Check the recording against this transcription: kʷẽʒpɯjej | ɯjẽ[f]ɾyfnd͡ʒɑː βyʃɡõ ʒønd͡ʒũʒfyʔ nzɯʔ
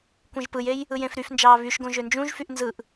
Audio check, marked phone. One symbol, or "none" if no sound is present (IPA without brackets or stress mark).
f